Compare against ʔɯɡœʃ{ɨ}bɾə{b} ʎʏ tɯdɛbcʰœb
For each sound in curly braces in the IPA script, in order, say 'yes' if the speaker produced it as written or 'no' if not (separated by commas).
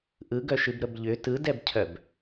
yes, yes